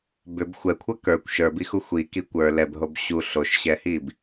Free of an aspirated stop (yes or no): no